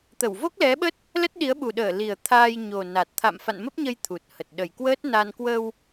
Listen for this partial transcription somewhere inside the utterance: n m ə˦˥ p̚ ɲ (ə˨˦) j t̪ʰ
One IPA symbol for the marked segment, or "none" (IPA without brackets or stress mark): ə˧